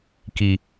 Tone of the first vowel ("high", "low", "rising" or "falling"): low